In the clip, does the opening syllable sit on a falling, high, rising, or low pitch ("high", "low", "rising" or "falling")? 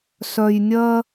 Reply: low